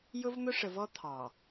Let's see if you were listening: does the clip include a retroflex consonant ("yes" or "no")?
yes